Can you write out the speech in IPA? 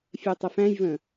fʲ ɛ tˤ ə f æ̃ j v ə̃

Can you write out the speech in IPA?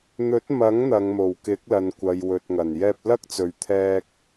n̪ ɵ˨˥ t̚ m ɐ˨˥ ŋ n̪ ɐ˨˧ ŋ m o˨˩ w k ɪ˨˥ k̚ l ɐ˨ n kʷ ɐ˨ j w ɵ˨ t̚ ŋ ɐ˨˩ n j ɛː˧ p̚ l ɐ˥ k̚ t͡s ɵ˨ ɥ t̪ʰ ɛː˧ k̚

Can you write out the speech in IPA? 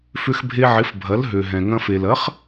f ʏ˧ x bʱ e˧ ʕ ɪ˩˥ f bʱ ɐ˩˥ l ɦ ø˩ ɦ ɛ̃˩ ŋ ɐ̃˧ f e˩ l ɐ˩˥ χ

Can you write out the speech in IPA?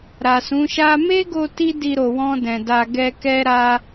ɾ a˨ s ũ˨˦ ʃ a˦ m e˦ ɡ o˧ t i˦ d i˧ ɾ o˨ w ɔ̃˧ d ɛ̃˨ d a˧ ɡ ɛ˧ k ɛ˦ ɾ a˦

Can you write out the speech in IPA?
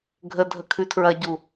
ɡʱ ə dʱ ə kʰ ʉ tʰ ɹ ɐ ɟ u

